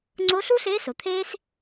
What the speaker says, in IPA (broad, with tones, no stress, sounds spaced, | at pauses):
ŋ͡ǀ o˧˥ ɬ u˥ ɬ e˧˥ s o˩ t̪ʰ eː˥ s